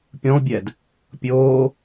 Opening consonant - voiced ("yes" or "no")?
no